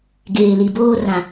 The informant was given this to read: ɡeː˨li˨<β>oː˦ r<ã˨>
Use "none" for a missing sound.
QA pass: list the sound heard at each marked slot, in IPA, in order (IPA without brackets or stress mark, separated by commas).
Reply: b, ã˨